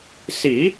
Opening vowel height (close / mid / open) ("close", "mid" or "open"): close